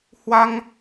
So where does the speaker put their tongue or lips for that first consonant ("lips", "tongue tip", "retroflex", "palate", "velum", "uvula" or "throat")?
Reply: throat